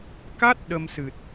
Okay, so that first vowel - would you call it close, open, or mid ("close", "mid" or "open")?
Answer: open